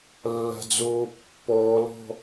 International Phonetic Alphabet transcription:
lː a̤ d͡z oː pː ɔː l ɔ̤

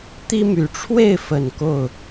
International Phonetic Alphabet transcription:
t̪ i˦ m y˨˦ ʈ͡ʂʰ w e˥˨ ɪ̯ f ə˨˩ n k o˥˨ ʊ̯

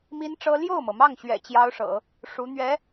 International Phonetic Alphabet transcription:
m i˥ n ʈ͡ʂ ɤ˥ l j o˥˩ ʊ̯ m ɤ˩ m ɑ˥˩ ŋ ɕ ɥ ɛ̰˨˩ t͡ɕ j ɑ˥ ʊ̯ ʂ ɤ̰˨˩˦ | ʂ u˧˥ n̪ ɥ ɛ˧˥

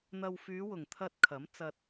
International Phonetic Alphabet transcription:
n̪ ɐ˨ w f yː˨˧ w ʊ˨˩ ŋ t̪ʰ ɐ˧ t̚ kʰ ɐ˨˥ m t͡s ɐ˧ t̚

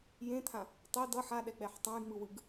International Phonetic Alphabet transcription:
j ẽ t̪ʰ ã | tˤ e d ʌ ħ a ɗ ɛ k͡p ɛ ħ tˤ ã j ŋ͡m ɯ w ɯ ɡ

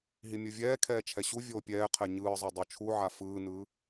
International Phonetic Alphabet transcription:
ɦ i mʲ ɯ vʲ ɛː kʰ ɛː t͡ʃʰ ɛ ɕ u vʲ oː pʲ ɛː qʰ ɛ ɲ ɯː zˤ o dˤ o t͡ʃʰ u ʕ a f ɯː n ɯː

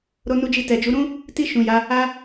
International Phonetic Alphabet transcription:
ɾ o˧ n u˧ d͡ʒ i˧ t ɛ˨ d͡ʒ u˨˦ ɾ ũ˦ | t i˧ ʃ ũ˨ j a˨˦ | a˦

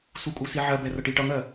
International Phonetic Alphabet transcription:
s u kʼ u s i ʕ ɜ b ɛ r ʌ ʈ i ʈ ʌ ŋ ɜ

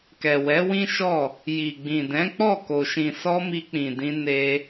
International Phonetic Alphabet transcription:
k ɛ˨ w ɛ˨˦ w ĩ˦ ʃ ɔ˦˨ | j i˨ ɡ͡b ĩ˨ d ɛ̃˨˦ k͡p ɔ˦˨ k o˨ ʃ ĩ˨ s ɔ˧ m i˧ k͡p ĩ˨ d ĩ˧ n e˧

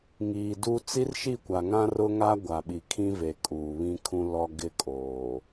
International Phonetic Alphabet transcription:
ŋ iː˨ d u˦ t͡s i˦ r ʃ i˦˨ kʷ a˨ ŋ ã˦ r ʊ˦ ŋ a˦ ɡʷ a˨ ɓ i˨ kʰ ĩ˦ v e˨ kʼ uː˨ β ĩ˦ kʰ ũ˦ l ɔ˦ ɡ ɪ˦ kʼ oː˨

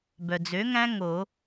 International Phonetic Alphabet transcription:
b œ˩ d͡z ø˨˥ ŋ æ̃˦˥ ŋ o˨˩˦

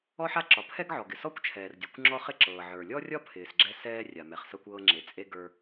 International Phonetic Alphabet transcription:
ɔ˥ ħ a˥ ǁ ɒ˩ pʰ ɛ˥ ɡ ʕ ɔ˩ ɡ ɪ˩ s ɔ˥ kʷ t͡ʃʰ ɛː˩ r dʲ ɒ˩ kʷ ŋ͡ǁ ɔ˥ χ ɪ˥ ǁ ɤː˩ ʕ ə˞˩ lʲ ɔ˥ rʲ ɒ˥ pʰ ɪː˩ s ɡ͡ǁ ɛ˥ s ɛː˥ rʲ a˩ m ɛ˩ χ s ɤ˥ kʷ ɤː˥ ŋ͡ǁ e˩ t͡sʼ e˥ ɡ ə˞˥

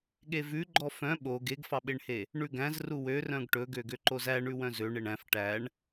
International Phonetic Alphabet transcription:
ɠ e v ʉ ɡ͡ǃ ɔ f œ̃ ɓ o ɡ e ɡ f ɑ ɓ e ɳ h e | ɳ ʉ ɡ æ̃ z r u w ø r œ̃ ɡ ʈ ɵ ɡ ø ɡ ø ǃ o z æ ɳ ʉ w œ̃ z ø ɳ e ɳ æ̃ f ʈ æ ɳ

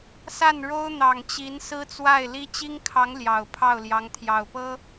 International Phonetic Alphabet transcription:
s a˥˩ n ɻ o˥ ʊ̯ n̪ ɑ˨˩ ŋ t͡ɕ i˧˥ n s ɹ̩˥ t͡s w a˥˩ ɪ̯ l i˥ t͡ɕ i˥ ŋ kʰ ɑ˧˥ ŋ l j ɑ˨˩ ʊ̯ pʰ ɑ˥˩ ʊ̯ l j ɑ˧˥ ŋ t̪ʰ j ɑ˨˩ ʊ̯ p ɤ˥

